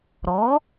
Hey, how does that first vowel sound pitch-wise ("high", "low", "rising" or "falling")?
rising